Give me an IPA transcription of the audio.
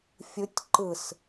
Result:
fʲ ɯ tʲ ǃ ɯ s

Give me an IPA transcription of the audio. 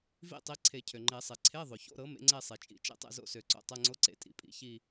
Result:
v ḭ˥˧ tˤ i˩˥ ǀʰ e˨˩˦ cʰ ø˩ ŋ͡ǃ e˨˩˦ sˤ e˩ ǀʰ e˧˥˧ ðˤ o˩ ç o̰˧˥˧ ɾ ɤ˩˥ m ḛ˩˥ ŋ͡ǀ e˥˧ sˤ e˩ t͡ʃʼ ḭ˨˩˦ t͡ʃ ḛ˥˧ tˤ ḛ˥˧ z o̰˥˧ s ø˨˩˦ ǀ o̰˩ tˤ ɜ˧˥˧ ŋ͡ǀ o˧˥˧ ǀ ḛ˩˥ tʼ ḭ˨˩˦ pʼ ḭ˨˩˦ ç i˥˧

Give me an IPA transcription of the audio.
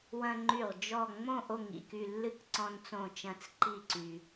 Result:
w ɐ̃˧ ŋ͡ǃ y˧˩ ʁ d͡ʒ ɔ˥˨ ŋ͡m õ˥˨ ʔ o˥˨ ŋ ḭ˧ k y˧ lː ɨ˥˨ k ǀ ɔ̃˧ n t͡s õ˧˩ t͡ʃ ɐ̃˧˩ t͡s ǃ i˥˨ ǀ y˧

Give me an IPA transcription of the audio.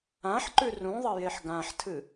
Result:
ã ħ ǃ ʉ r ũ ðˤ ɐ j e ħ ɡ ã ħ tʰ ɨ

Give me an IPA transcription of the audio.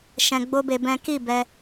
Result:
ʃ ɛ̃˧ ɡ͡b o˦ b e˧ b ɛ̃˦ k i˦˨ b ɛ˧

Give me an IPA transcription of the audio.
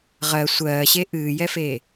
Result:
ʁ ɜ sʷ ɜː ɕ e ʔ ɨː j ɛ f e

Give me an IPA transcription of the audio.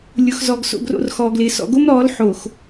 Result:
lʲ ʊ˨ x z ɔ˨ ɡ s o̰˨ ɡ r o̰˨ r x ɔː˨ ɡ l ɪː˨ s ɔ̰˨ ɡ o˦ m ɾ ɔː˨˦ l ħ o˨ x

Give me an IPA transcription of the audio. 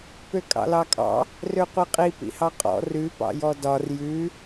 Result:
p ø kʼ ɑ̰ l ɑ kʼ ɑ̰ | r ø qʷ i qʼ i p ḭ h ɑ qʼ ɔ̰ r ʉ p ɑ̰ j ɔ d ɒ r j ʉ

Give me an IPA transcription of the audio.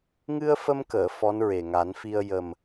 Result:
ŋ ɨ˧ ə̯ f ə˧ m k əː˨˩˨ f ɔ˧˥ n ɹ e˨˩ ŋ a˨˩˦ n f i˧ ə̯ j ə˨˩ m

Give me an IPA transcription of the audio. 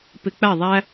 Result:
p ɪ˧˩˧ k͡p æ˥˩ ðˤ æ˦

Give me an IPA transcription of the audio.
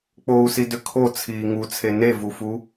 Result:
k͡p o u̯ s i d ʏ kʰ o t͡sʰ iː ŋ u t͡sʰ e n e v u f u

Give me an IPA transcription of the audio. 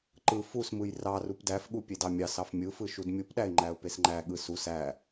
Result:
ǃ ɯ f u s m ɯ j r ɑ r u p d æ f ɠ u pʲ e d ɑ mʲ ɑ s ɑ f mʲ ɯ f ɯ ʃ u d mʲ u p ɗ æ ɪ̯ ŋ͡ǃ æ ʊ̯ p e s ŋ͡ǃ æ ɠ ɯ s u s æ

